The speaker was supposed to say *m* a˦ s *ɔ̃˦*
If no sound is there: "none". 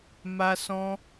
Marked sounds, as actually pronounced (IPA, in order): m, ɔ̃˦

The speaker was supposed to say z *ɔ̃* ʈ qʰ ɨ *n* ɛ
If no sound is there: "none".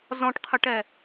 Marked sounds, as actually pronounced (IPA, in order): ɔ̃, ʈ

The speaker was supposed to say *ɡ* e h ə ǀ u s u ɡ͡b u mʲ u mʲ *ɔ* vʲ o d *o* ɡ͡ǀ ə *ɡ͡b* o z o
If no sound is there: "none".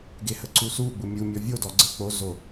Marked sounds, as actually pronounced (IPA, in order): ɡ, ɔ, ɔ, k͡p

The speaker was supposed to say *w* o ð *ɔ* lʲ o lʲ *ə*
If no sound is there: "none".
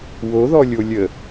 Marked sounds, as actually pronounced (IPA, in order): w, ɔ, ə

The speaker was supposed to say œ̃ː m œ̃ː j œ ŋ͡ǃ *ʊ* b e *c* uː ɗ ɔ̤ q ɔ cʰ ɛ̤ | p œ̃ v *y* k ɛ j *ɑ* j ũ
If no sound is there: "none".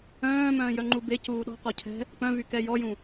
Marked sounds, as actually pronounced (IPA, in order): u, c, y, ɔ

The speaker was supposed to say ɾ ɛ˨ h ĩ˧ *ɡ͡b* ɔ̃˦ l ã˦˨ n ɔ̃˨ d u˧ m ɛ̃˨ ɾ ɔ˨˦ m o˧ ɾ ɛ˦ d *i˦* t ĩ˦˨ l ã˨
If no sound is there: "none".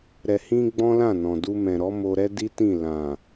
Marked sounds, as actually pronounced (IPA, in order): ɡ͡b, i˦

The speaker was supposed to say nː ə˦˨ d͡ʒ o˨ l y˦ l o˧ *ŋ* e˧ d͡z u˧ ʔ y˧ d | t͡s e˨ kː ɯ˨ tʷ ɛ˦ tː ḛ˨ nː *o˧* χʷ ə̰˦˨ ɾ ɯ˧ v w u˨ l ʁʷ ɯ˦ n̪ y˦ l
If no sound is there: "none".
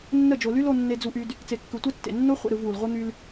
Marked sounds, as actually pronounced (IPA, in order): nː, o˦

